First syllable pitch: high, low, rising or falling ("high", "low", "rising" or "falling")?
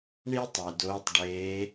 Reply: high